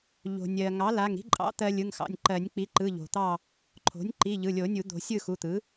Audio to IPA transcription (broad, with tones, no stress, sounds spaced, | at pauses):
ʎ o̤˩ nʲ ɜ˩ ŋ ɑ˩˥ l a˩˧˩ ŋ ɾ i̤˦ ǃʼ ɑ̰˩˥ t̪ ɜ˦ lʲ ɯ˩˧˩ ŋ x ɑ̰˩˧˩ nʲ ǃ ɜ˨˩˦ nʲ k͡p i˩˥ ǃ ɯ˩˧˩ ʎ o̤˩ t̪ ɑ˥˨ | ǃʰ o̤˩˥ nʲ ǃ i˩˧˩ ʎ ɯ˩˧˩ lʲ o˨˩˦ nʲ u˨˩˦ d̪ o̤˨˩˦ sʲ ɯ˥˨ x u˩˧˩ t̪ ɯ˩˥